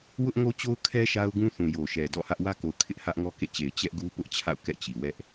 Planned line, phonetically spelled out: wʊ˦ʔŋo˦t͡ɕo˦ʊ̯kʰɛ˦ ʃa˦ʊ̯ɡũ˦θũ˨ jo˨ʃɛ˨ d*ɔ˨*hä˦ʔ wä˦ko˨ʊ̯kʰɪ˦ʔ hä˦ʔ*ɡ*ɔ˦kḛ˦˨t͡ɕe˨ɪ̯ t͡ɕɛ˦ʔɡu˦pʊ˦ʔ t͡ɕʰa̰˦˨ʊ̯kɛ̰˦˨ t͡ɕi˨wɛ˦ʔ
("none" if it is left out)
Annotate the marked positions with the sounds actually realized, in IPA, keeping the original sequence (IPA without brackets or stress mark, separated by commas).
ɔ̰˦˨, ŋ